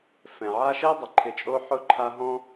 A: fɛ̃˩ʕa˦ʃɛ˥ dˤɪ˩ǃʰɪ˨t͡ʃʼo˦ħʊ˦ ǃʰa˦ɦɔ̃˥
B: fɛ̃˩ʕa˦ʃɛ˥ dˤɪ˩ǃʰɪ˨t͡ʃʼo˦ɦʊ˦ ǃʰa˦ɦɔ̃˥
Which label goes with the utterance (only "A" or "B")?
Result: A